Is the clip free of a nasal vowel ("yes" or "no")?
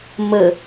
yes